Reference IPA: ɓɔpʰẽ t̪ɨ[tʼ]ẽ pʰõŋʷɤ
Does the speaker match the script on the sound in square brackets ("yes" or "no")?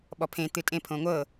yes